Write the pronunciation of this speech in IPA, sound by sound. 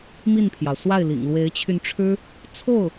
m i˥˩ n pʰ j ɑ˩ ʊ̯ s w a˥˩ ɪ̯ l ḭ˨˩ ŋ l w e˧˥ ɪ̯ t͡ɕʰ y˧ n ʈ͡ʂʰ ɻ̩˥ | t͡sʰ o˥˩ ʊ̯

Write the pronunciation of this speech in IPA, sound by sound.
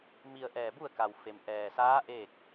m i˧ ə̯ ʔ ɛː˧˩ b u˥˨ ə̯ k a˩ w f e˩ m ʔ ɛː˩ s aː˧˥ ʔ eː˥˨ k̚

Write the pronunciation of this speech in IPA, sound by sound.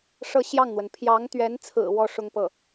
ʂ ɤ˥˧ ɕ j ɑ˥˩ ŋ n̪ w ə˩ n pʰ j ɑ˧˥ ŋ t̪ ɥ ɛ˧˥ n t͡sʰ ɹ̩˨˩ w ɔ˥ ʂ ʊ˥ ŋ p ɤ˥˩

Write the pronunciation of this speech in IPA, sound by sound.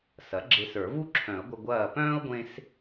s ɐ˩˥ ɡ͡ǁ e˧ s ə˞˨˩˦ v u˥ ǁʰ œ̃˨˩˦ ə̯ ɡʷ ə˧ ɡʷ ɐː˧˩ p œ̃ː˥ ʊ̯ ɡʷ ẽ˧ s

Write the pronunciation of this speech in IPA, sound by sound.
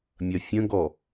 mʲ ɐ fʲ ə̃ ɡ ɔ

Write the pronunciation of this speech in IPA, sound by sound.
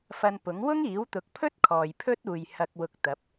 f ɐ˧ n p ʊ˨˥ ŋ w ʊ˥ ŋ iː˨˥ w t̪ ʊ˨˥ k̚ pʰ ɵ˥ t̚ kʰ ɔː˨ j pʰ ɵ˥ t̚ uː˨ j h ɐ˧ k̚ w ʊ˧ k̚ t̪ ɐ˨˥ p̚

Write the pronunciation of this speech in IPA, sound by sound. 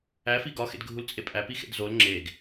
æ f i ɡ ɒ x ḛ d ɡʱ u l t͡sʼ e pʼ æ p i x ḛ d z o l ŋ͡ǁ e ɡ

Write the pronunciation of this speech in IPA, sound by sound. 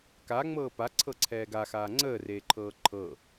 k a ŋ͡m ɤː p a ǀʰ ɤ ǀʰ ɛː ɡ a x aː ŋ͡ǀ əː r eː ǃʰ ɤː ǃʰ ɤ

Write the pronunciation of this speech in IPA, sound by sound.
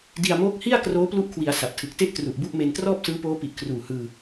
d i˧ a̯ m oː˦˥ k̚ h i˥˩ a̯ k r oː˦˥ p l u˦˥ ʔ kʰ w i˩˦ a̯ s a˨˩ p̚ tʰ ɯ˨˩ k̚ t e˥˩ ʔ t r u˨˩ ʔ b u˦˥ ʔ m e˧ n t r ɔː˥˩ p̚ s ɯː˦˥ p oː˦˥ p i˨˩ ʔ kʰ r uː˨˩ h ɯː˧

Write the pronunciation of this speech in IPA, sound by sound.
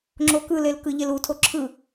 ŋ͡ǁ o k ɯ l e l k ɯ ʎ e l u tʰ o ǁʰ ɯ

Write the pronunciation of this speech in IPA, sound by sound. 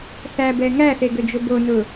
θ æ b ɛ ŋ æ θ e ɡ ø d͡ʒ ʊ b o n ʊ

